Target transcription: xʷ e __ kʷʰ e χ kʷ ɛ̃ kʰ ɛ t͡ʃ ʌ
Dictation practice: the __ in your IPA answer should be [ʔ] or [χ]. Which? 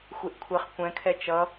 ʔ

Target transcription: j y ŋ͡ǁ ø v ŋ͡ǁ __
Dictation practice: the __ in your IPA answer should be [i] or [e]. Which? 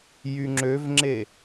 e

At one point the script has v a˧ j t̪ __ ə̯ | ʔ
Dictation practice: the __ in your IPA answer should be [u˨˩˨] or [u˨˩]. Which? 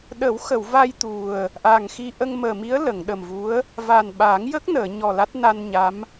u˨˩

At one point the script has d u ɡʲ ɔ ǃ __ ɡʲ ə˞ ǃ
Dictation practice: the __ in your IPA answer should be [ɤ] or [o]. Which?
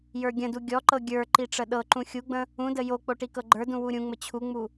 ɤ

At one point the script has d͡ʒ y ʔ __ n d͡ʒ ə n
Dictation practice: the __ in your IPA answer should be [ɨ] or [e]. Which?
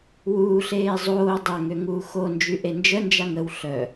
e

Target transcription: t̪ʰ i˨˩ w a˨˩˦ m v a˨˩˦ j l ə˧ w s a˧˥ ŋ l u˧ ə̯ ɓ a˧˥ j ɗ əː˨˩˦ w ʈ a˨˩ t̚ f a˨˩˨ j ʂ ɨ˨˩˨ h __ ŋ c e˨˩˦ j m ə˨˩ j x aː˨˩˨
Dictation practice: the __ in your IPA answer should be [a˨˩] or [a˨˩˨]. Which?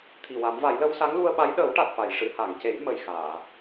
a˨˩˨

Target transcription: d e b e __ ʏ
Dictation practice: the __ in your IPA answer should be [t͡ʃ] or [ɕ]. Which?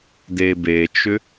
t͡ʃ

